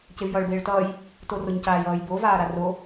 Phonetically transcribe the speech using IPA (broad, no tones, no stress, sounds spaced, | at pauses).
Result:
c e v j ʌː ɭ b eː ɭ t ʌː j | t o r o ɲ c aː j ʌː j b o v aː ɾ a r o